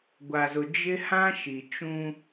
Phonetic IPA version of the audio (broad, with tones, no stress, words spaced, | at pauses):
ɡʷa˨zʊ˨ d͡ʒɪ˦hã˦ ʃi˨ t͡ʃũ˦